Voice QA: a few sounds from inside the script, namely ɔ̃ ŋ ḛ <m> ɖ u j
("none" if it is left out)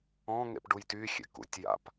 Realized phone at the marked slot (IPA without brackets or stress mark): p